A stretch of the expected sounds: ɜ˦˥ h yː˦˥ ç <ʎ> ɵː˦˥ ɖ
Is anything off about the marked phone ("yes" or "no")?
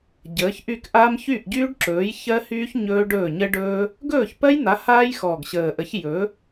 yes